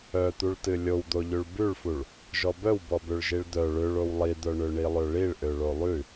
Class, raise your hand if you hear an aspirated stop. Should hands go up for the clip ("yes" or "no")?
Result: no